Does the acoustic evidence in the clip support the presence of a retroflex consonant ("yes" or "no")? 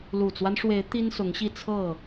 yes